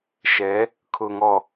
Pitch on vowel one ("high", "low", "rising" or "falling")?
rising